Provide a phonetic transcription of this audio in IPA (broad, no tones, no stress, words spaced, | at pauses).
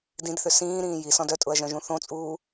dĩdθʏ sĩːɾĩː jisɔ̃d œtʼʊɐ̯ʒœ̃ʒũ θõt͡sʼuː